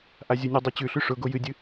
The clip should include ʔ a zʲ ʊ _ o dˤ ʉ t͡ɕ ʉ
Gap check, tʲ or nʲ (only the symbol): nʲ